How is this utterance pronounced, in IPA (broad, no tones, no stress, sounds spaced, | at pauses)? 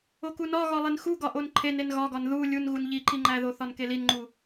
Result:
o k u n ɒ ɣ ɒ lˠ e n x u ɡ ɒ ʔ o n ǃʰ e n e n ɣ ɒ ɡ ɒ n ð u lʲ u n ɣ u n ʎ i ǃ i ŋ͡ǃ æ ð o θ ɒ n k e l i n ŋ͡ǃ u